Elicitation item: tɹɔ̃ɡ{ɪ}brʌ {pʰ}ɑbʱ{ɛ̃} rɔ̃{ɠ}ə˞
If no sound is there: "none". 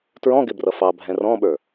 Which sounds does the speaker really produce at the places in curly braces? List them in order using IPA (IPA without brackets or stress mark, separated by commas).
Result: ɪ, f, ɛ̃, ɓ